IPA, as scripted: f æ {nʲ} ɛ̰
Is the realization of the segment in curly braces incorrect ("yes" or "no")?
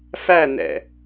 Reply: yes